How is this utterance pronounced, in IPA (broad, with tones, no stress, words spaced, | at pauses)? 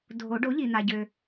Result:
dʱo˨˩˦ ɖo˩˥ʎi˩n̪a˩ɟø˩